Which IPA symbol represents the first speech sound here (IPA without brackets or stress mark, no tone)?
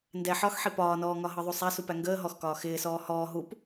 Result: n